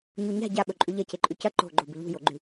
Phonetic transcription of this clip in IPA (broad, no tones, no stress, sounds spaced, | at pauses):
ɲ u ɲ a̤ ɟ a ɓ ɵ ǃʼ ʉ ʎ ɐ c e ǃʼ ʉ c ɐ ǃ o̤ ɡ͡ǃ o b ɨ ʎ ṳ j o ɡ͡ǃ ʉ